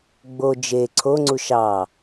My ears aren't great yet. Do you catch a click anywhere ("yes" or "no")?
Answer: yes